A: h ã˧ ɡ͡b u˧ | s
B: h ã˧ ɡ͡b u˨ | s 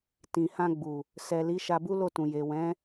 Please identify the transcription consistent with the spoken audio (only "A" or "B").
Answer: B